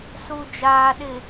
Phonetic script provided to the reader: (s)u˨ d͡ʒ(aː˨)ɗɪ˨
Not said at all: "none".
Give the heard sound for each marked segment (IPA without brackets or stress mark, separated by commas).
s, aː˨